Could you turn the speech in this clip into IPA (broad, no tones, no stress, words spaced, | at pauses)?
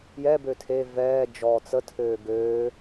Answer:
jɛ bøtʰe vɛː d͡ʒɔːt͡sə tʰøːɡøː